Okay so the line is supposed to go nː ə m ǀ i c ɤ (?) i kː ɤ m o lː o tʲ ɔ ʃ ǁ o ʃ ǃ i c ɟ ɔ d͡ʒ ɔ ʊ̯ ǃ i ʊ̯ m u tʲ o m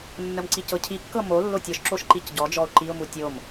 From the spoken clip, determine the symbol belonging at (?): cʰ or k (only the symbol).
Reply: cʰ